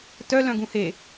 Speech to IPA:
t œ l œ̃ ɡ ũ h e

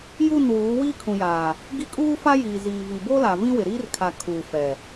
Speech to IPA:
j u˦˨ n w uː˨˦ w iː˦ kʰ ũ˨ j aː˨ | ɡ i˦ kʼ uː˦ f a˦ j iː˨ z iː˨ v i˨ b o˦ l a˨ v ĩ˦ w ɪ˨ ɾ iː˦ r kʰ a˨ kʰ uː˨ f ɛ˨

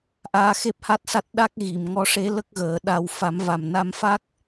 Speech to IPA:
ʔ aː˧˥ x e˦˥ p̚ h a˦˥ t̚ s a˦˥ t̚ ɗ a˦˥ k̚ ɣ i˨˩˨ m ŋ ɔ˧˥ ʂ e˧˥ l ə˦˥ k̚ ɣ əː˨˩˦ ɗ a˧ w f a˨˩˦ m v a˨˩ m n a˧ m f a˦˥ k̚

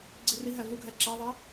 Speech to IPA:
ɡ͡ǀ i r i ɦ æ v u ɡʱ æ ǁ æ ðˤ æ

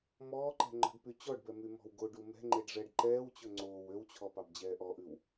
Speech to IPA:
m ɔː ǃ ɛ̤ ŋ͡ǃ ɔ̤ ɖ p y t͡ɕ ɔ ɖ b ɛ m y m ɔ̤ w ɡ o ɖ u m ɛ̤ ŋ͡ǃ e ɖ ʐ ɛ ɖ ǃ ɛː w t͡ɕ ɵ ŋ͡ǀ oː w ø w t͡ɕʰ ɔ p ɑ b d͡ʑ ɛː ʔ ɔ ʔ ʉ w

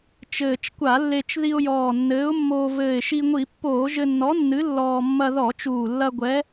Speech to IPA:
t͡ʃ ɘː˨˩ t͡ʃ kʷ a˧˩˧ lː e˧ t͡ʃ ð i˧ ʊ̯ j ɔː˨˩ nː ɘː˨˥ ʊ̯ mː oː˧ v ɘː˨˩ ɪ̯ ʃ i˧ ŋʷ i˧˩˧ pː oː˧˩˧ ʒ ɘ˧ nː ɔ˨˥ nː ɨ˨˥ lː ɔː˧ mː ɐ˧ ð ɔ˧˩˧ t͡ʃ uː˨˩ lː ɐ˧ ɡʷ ɛ˨˥

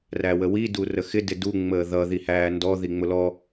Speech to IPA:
r æ w ə w i d u r ə x ɪ d ɪ d u ŋ͡m əː ð ʌ ð i h æː n d ɔ ð i ŋ͡m ʊ l ɔ

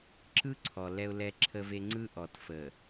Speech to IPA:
ǁ ɯ˦ ǀʰ ɔ˨ l ɛ˨ ʊ̯ l ɛ˨ ǁʰ ə˨ v e˨ ŋ͡ǀ ɯ˦ ʔ ɔ˨ t f ə˨

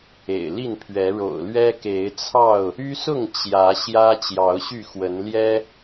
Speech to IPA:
ḛ˨˩ ɪ̯ l i˥˨ n pʰ ɥ ɛ˨˦ ɻ o̰˨˩ ʊ̯ l ɥ ɛ˦ k e˨˦ ɪ̯ t͡sʰ ɑ˥˨ ʊ̯ | y˦ s ʊ˥˨ ŋ t͡ɕ j ä˨˦ ɕ j ä˦ t͡ɕ j ɑ˨˦ ʊ̯ ɕ y˥˨ x w ə˨˦ n l j ɛ˦

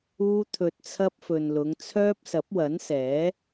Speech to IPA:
uː˥ t̪ʰ ɵ˧ t̚ t͡sʰ ɐ˥ p̚ f ɵ˨ n l ʊ˨˧ ŋ t͡sʰ œː˥ p̚ s ɐ˨˥ p̚ w ɐ˨˥ n s ɛː˨˥

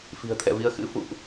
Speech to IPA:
f i̤˨˩ ə̯ t̪ʰ ɛ̰˧˨ v i˨˦ ə̯ x ɨ̰˧˥ f ṵ˧˨ ʔ

